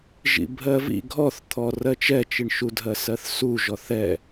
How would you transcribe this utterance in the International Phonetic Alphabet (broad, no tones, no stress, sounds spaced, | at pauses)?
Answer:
ʒ ḭ bʱ ɜ v ḭ ɡʱ ɔ θ t̪ʰ ɔ r ɜ t͡ʃ ɛ t͡ʃ i ɳ ʃ u dʱ ɜ s ɜ θ s u ʒ ɔ θ ɛ